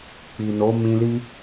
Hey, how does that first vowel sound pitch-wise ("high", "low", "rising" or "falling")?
low